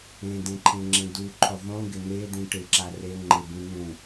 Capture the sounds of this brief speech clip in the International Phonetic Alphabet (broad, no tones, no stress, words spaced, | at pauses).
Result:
ẽdẽǃʰẽŋ͡ǁẽ duǃʰʊ ðˤũɡɪ n̪ed̪ĩ ʈɪǁa re ŋ͡ǃɪbĩ n̪ũ